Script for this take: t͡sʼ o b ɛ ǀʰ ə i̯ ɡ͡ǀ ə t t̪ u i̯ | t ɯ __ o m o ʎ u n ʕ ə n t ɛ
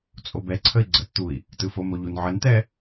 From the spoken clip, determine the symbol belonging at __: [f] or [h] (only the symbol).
f